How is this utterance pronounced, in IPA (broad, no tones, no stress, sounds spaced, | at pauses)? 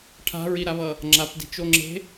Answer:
ʈʰ a̤ ɹ i ɾ a β ʌ | ŋ͡ǁ a p d i̤ t͡ʃ o ŋ͡ǁ e̤